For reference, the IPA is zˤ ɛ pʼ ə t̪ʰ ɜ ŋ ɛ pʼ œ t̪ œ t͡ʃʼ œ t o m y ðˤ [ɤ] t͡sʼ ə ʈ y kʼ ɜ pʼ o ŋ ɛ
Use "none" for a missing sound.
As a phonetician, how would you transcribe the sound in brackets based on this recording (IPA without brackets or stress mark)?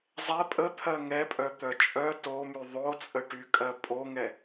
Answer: o